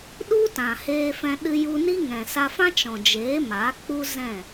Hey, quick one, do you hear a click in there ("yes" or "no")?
no